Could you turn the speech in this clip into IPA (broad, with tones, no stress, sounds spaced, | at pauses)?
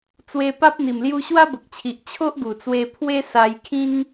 t͡s w e˧ p a˦ p̚ n̪ i˨˩ m l j u˧ ɕ w a˦ b ə˨ k̚ t͡ɕʰ i˨ ʔ t͡ɕʰ o˦ ʔ ɡ u˨˩ t͡s w e˧ pʰ w e˦ s a˧ j kʰ ĩ˦ ŋ